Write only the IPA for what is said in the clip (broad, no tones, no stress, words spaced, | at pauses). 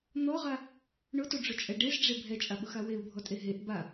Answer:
n̪ɔʁa | ɳʊtoɖ͡ʐʊt͡ʃʼɛ ɖezɖ͡ʐe bʱɛt͡ʃʼaɓʊxa weu̯bʱɔtʼe ɦeʔ ba